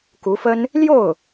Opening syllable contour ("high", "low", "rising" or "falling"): rising